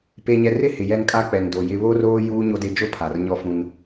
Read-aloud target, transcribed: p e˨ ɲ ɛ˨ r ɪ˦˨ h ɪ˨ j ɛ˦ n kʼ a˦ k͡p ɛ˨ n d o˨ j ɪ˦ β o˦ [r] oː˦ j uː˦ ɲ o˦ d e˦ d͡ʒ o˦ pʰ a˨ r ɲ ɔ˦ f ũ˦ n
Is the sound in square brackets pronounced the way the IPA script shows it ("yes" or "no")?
yes